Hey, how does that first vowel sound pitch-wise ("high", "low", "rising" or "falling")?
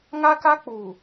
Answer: high